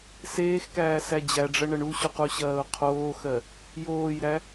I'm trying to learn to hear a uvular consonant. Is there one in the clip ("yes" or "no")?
yes